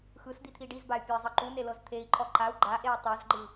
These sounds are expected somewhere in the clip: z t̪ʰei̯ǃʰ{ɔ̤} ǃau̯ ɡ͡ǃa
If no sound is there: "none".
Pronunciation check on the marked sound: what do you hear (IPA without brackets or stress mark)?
ɔ